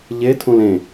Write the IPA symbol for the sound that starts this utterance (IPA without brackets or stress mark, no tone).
ʎ